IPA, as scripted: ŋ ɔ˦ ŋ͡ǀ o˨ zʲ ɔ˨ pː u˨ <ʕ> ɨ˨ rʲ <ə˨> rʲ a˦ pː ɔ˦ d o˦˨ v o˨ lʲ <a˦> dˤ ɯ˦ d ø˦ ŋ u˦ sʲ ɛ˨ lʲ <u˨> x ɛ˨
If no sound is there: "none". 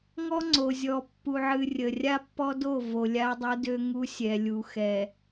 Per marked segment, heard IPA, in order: ʕ, ə˨, a˦, u˨

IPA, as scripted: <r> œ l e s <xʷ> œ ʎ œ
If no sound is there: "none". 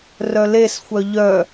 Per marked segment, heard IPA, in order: r, xʷ

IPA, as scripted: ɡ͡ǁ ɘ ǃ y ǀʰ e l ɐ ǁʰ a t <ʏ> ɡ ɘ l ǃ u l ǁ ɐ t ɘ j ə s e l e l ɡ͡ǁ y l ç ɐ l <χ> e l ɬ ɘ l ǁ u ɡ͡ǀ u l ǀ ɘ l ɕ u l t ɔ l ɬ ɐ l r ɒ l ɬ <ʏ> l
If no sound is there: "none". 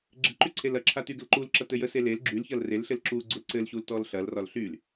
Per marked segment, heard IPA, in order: y, r, y

